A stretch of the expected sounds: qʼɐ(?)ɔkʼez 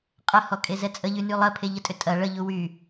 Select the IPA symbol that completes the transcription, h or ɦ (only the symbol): h